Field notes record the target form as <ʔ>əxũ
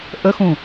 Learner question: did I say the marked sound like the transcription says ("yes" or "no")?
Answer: yes